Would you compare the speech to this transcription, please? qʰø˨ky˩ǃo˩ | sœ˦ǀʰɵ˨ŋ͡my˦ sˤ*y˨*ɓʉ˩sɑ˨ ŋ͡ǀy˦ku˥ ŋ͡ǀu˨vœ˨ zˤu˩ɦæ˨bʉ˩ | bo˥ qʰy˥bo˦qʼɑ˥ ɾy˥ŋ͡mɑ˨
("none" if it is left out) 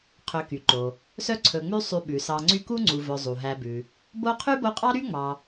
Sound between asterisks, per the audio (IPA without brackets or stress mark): y˨